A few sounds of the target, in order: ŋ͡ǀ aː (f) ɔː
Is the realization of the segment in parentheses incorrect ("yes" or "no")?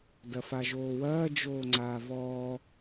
yes